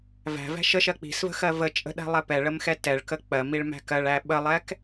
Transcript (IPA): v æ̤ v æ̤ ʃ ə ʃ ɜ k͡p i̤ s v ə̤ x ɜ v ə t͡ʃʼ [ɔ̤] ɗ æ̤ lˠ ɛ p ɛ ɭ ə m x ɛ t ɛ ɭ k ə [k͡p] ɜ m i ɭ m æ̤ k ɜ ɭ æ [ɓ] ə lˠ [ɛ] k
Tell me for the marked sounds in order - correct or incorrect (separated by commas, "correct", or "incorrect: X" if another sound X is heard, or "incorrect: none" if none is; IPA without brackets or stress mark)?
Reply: incorrect: ə̤, correct, correct, correct